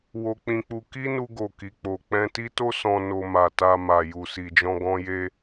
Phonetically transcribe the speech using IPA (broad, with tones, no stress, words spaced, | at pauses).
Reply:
wo˦k͡pĩ˦k͡pu˦ ki˦nu˧ɡo˨ ki˨k͡po˨ k͡pɛ̃˧ti˦to˦ sɔ̃˧no˧ ma˨ta˧ma˨ ju˨si˨ d͡ʒɔ̃˧ɡɔ̃˧je˧